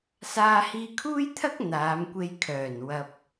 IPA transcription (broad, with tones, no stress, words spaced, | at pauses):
saː˧hiː˧kʰuː˥jt̪ʰɐ˥k̚ n̪aː˨˧mkʷe˧j kʰœː˨˩n wɐ˧p̚